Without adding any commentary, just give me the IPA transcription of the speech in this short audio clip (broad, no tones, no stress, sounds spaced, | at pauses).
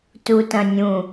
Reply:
t u t ɐ̃ nʲ ũ